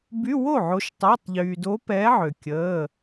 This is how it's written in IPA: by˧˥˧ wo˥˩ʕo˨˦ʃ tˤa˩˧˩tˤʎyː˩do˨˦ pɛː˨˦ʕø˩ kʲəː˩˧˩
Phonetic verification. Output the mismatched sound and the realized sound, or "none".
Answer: none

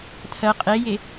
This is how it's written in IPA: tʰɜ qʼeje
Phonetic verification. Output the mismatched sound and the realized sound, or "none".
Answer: none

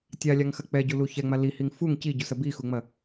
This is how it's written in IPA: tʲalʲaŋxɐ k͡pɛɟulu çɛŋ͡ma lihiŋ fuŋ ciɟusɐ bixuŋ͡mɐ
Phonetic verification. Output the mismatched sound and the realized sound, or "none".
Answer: none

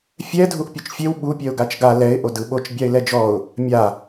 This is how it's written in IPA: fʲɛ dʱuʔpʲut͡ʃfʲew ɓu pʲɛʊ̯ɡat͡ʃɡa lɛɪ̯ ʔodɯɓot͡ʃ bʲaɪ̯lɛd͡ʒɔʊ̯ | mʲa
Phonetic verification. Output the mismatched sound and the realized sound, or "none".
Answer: none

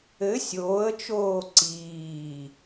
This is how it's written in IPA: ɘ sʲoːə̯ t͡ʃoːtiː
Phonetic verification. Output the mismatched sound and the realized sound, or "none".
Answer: t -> ǀ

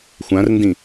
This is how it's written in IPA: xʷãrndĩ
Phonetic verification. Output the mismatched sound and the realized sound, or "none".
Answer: none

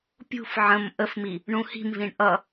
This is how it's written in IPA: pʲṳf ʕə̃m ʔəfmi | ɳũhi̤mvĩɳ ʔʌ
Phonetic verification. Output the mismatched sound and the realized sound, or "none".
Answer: none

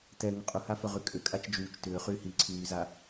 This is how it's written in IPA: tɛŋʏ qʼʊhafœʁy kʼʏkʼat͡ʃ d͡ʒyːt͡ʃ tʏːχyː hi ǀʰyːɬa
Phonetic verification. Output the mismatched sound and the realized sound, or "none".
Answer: ɬ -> z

